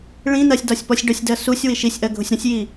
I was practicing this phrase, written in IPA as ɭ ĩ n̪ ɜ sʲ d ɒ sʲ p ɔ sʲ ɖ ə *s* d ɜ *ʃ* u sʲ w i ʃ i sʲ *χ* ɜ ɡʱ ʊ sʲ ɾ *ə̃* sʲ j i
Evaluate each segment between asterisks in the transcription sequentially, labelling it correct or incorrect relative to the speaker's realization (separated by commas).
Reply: incorrect, incorrect, incorrect, correct